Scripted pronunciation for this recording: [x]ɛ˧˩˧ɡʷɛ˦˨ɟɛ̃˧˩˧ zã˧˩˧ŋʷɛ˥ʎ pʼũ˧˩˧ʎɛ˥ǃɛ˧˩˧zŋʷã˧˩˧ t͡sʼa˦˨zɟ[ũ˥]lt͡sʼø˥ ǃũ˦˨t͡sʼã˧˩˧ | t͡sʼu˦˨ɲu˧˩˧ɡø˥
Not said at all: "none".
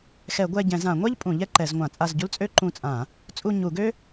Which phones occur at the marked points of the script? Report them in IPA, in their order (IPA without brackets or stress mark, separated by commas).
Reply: x, u˥